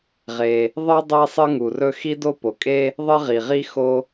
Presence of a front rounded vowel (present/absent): absent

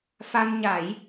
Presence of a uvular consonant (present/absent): absent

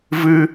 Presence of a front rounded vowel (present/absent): absent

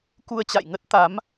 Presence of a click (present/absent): absent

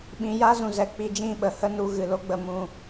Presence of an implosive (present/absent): present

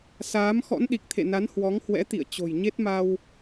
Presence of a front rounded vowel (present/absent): absent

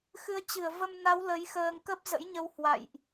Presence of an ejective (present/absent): absent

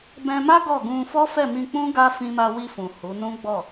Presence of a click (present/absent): absent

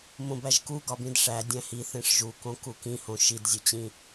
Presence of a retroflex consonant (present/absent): present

